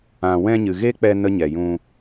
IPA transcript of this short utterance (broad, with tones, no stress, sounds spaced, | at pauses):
ã˧ w ɛ̃˧ ɲ ɨ˨ ɣ e˦ k͡p ɛ˧ n ə˦ ɲ ɛ˨ j ũ˧